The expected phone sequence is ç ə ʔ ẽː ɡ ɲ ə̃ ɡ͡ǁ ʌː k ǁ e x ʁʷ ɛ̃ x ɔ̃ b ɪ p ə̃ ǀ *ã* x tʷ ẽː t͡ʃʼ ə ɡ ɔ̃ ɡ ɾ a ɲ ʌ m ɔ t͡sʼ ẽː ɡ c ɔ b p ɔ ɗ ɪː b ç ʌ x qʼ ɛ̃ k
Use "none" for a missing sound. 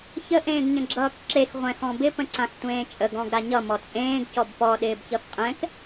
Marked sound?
ã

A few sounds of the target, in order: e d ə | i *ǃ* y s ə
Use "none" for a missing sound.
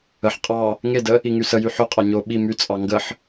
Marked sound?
ŋ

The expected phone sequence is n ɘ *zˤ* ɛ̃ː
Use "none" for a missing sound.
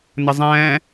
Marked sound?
zˤ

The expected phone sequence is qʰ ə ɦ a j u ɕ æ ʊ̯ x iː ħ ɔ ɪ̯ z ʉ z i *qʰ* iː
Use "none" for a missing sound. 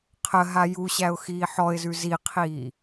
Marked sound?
qʰ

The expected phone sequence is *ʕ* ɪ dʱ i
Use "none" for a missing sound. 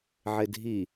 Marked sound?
ʕ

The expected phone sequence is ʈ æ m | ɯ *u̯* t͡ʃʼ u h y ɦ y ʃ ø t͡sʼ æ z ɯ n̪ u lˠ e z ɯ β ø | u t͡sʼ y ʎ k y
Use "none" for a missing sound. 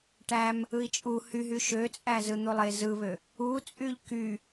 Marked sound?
i̯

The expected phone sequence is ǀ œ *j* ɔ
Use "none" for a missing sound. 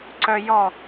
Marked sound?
j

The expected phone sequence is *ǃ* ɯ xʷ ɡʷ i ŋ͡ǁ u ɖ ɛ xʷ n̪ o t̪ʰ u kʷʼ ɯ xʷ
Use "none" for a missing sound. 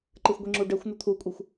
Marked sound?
ǃ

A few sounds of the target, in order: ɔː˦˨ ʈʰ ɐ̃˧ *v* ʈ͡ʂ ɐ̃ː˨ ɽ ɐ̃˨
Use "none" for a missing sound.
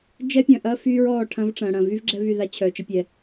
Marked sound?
v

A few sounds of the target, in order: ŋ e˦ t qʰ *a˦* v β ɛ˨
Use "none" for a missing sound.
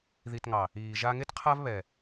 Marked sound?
a˦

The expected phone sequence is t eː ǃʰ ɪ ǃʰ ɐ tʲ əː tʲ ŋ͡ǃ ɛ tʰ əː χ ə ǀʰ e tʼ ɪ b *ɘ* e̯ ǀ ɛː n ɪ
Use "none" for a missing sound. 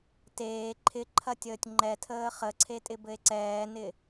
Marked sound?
ɘ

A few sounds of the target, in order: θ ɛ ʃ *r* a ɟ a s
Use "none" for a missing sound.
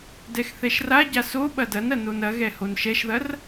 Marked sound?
r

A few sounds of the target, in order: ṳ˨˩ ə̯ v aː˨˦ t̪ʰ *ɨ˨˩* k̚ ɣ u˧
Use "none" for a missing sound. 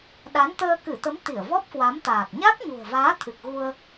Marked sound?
ɨ˨˩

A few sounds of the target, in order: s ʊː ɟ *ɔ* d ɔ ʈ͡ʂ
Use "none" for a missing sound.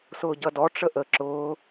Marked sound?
ʌ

